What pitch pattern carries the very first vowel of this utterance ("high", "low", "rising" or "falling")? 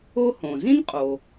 high